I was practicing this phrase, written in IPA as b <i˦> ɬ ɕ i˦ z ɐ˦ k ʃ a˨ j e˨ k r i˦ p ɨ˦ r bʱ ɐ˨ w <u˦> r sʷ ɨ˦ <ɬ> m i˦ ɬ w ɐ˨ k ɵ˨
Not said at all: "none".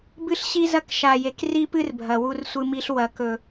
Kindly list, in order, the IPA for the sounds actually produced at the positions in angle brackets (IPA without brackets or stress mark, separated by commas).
ɨ˦, u˦, none